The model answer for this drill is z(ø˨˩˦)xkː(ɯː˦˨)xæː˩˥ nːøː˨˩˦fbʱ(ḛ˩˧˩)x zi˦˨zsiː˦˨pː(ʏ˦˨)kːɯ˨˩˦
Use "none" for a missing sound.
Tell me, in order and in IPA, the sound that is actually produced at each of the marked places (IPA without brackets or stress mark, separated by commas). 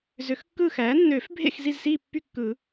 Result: ø˨˩˦, ɯː˦˨, ḛ˦˨, y˦˨